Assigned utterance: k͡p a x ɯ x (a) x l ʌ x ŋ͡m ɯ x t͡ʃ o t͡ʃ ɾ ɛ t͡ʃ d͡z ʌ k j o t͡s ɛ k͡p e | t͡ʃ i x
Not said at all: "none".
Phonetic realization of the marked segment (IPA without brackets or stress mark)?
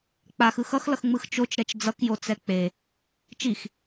ʌ